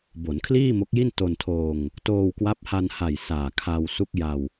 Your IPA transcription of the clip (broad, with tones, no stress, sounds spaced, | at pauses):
b o˩˦ n kʰ l iː˥˩ m o˦˥ k̚ j i˥˩ n t o˧ n tʰ oː˧ ŋ | t oː˧ w k w a˦˥ p̚ h a˧ n h a˨˩ j s aː˨˩ kʰ a˧ w s u˦˥ k̚ j a˧ w